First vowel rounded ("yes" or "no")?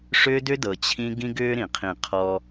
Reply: yes